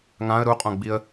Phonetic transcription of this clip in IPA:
ŋ ã ə̯ ɾ u qʼ õ ɡ͡b i ə̯

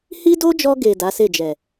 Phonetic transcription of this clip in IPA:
h i˦ d o˦ d͡ʒ ɔ˧ ɡ e˨ d a˨˦ s e˦˨ d͡ʒ ɛ˨

